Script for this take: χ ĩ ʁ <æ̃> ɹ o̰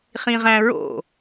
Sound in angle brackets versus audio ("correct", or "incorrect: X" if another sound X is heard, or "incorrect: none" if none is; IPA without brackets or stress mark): correct